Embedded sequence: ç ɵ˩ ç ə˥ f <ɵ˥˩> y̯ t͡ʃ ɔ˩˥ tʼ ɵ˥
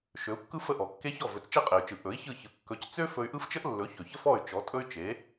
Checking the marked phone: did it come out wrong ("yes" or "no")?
yes